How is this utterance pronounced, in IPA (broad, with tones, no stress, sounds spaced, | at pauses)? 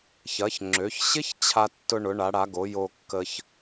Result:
ç ɐ˩˧ ç ŋ͡ǁ ø˩˧ ç ɕ ɪ˥ ç t͡ɕʰ a˧ tː ʊ˧ ɳ ʊ˩˧ ɳ a˩˧ ɽ a˩˧ ɡ o˩˧ j o˧ kː ə˧ ç